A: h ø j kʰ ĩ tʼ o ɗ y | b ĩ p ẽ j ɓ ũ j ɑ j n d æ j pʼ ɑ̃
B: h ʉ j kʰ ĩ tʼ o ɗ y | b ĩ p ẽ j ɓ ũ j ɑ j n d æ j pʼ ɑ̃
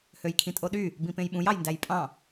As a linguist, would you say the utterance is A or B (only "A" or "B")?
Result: A